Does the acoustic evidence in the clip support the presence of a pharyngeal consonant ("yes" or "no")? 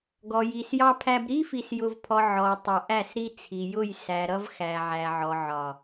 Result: yes